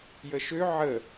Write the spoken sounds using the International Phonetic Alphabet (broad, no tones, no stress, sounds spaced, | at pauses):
j ə ʃ ø ʕ ə